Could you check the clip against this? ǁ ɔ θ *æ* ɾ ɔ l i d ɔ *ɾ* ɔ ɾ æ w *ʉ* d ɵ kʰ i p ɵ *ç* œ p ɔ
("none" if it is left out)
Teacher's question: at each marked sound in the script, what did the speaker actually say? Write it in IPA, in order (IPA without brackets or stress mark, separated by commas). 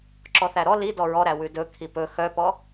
æ, ɹ, ʉ, x